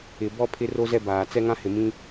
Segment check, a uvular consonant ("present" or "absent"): absent